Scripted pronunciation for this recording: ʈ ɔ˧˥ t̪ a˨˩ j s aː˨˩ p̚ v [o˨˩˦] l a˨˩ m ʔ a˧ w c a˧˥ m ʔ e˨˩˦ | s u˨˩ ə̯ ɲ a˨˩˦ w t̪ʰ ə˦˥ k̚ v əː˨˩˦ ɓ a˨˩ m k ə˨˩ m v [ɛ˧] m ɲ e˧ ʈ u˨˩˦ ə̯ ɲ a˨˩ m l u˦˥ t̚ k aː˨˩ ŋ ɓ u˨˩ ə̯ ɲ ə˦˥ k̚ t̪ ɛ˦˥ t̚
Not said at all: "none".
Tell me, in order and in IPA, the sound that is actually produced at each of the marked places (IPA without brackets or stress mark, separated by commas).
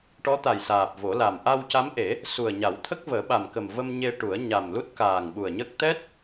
o˨˩˦, ə˧